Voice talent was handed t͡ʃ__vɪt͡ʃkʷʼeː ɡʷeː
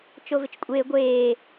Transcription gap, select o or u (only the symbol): o